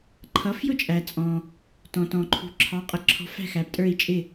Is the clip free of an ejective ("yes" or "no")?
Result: no